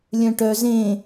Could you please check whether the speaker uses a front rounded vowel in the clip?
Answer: yes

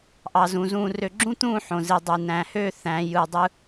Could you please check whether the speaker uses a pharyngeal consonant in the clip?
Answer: yes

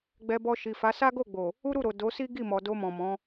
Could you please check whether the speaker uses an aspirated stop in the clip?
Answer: no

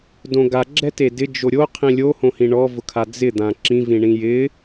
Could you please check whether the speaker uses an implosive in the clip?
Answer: no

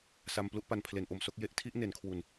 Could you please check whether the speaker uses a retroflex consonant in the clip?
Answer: no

